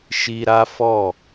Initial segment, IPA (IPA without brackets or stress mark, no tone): ʃ